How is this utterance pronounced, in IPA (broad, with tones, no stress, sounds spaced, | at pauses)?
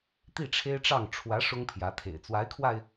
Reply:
t̪ i˥˩ ʈ͡ʂʰ e˥ ɪ̯ ʈ͡ʂ ɑ˥˩ ŋ ʈ͡ʂʰ w ä˧˥ ʂ ʊ˥ ŋ pʰ j ä˧˥ t̪ʰ ḛ˨˩ ɪ̯ t͡s w a˧˥ ɪ̯ kʰ w a˧ ɪ̯